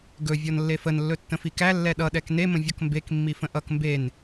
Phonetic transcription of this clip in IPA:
ɡɵ vʲɔnlːefənlːɵ tːə̃fikæ lːɛɗʌɗɛk nemə̃ vʲɔkmbek mːifə̃ʔʌk mben

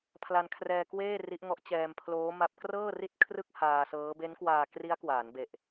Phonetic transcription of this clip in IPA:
pʰla˧nkʰrɛː˧kweː˥˩ ri˦˥ʔŋɔ˦˥ʔ t͡ɕɛː˧mpʰloː˦˥ma˦˥p̚ krɤː˥˩ri˥˩t̚ kʰrɯ˥˩k̚haː˧sɤː˦˥ be˦˥nkwaː˧ kri˦˥a̯kwaː˩˦nbe˨˩ʔ

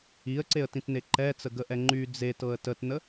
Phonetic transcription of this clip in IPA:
iə̯ǀeə̯tĩtne ǃɛt͡səɡəʔɛ ŋ͡ǃy d͡zetɤə̯ tətnə

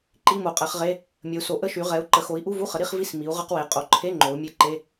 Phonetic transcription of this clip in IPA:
ǃi˧˥˧mo˩˧qʼɛ˩˧χʁe˧˥˧ | mʲə˩˧u̯so˩˧ ʔə˧˥˧ʃy˩˧ ʁɛ˩˧u̯ǃə˩˧xo˩˧i̯ ʔu˧˥˧vu˧˥˧χə˩˧ ɾi˧˥˧χvi˧˥˧s mi˩˧u̯ ʁə˧˥˧qwe˩˧ qʼo˩˧ǃʰe˧˥˧ ŋ͡ǃo˩˧u̯mʲe˧˥˧ǃe˧˥˧

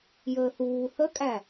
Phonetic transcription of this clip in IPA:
jəːθuː θəkʼæ

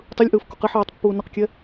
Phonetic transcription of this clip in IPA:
tˤɯlʲʔɯːf koqiħiːtˤ pːuːnʌqkʲɛ

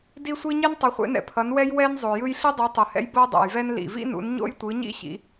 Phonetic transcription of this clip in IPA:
di˥sʷi˥ ɲi˥ntˤʌ˨˦χʷḛ˨˦nɛ̰˩ pʰʌ˨˦nwɛ˥j wɛ˥n zˤo˩jɯ˥j ɬi˥dˤu˨˦ tˤɯ˩hɛ̰˥j bo˥dˤɛ̰˩jvɛ˥n lḭ˩vḭ˥nṵ˨˦n ɲo̰˥jtʷɯ˨˦ɲḭ˥ ɕḭ˨˦

